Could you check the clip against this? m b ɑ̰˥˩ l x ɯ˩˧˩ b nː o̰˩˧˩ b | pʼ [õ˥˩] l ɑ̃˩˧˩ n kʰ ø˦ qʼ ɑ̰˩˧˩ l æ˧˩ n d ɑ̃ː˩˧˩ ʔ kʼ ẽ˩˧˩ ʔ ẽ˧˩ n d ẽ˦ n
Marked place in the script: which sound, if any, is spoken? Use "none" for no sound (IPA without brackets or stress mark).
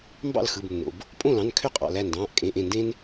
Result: õ˥˩